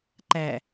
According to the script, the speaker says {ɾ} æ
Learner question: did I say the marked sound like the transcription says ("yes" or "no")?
no